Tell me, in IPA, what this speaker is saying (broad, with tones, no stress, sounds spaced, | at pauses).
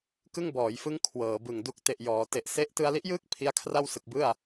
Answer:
k ɯ˥˩ ŋ b ɔː˩˦ j f ɯ˦˥ ŋ kʰ w ɤː˩˦ b ɯ˨˩ ŋ d u˦˥ k̚ t e˨˩ ʔ j ɔː˩˦ t e˨˩ ʔ s e˥˩ ʔ t ɯ˧ a̯ l i˦˥ ʔ j ɯː˥˩ k̚ pʰ i˦˥ a̯ kʰ r a˥˩ w s ɯ˨˩ k̚ b ɯ˥˩ a̯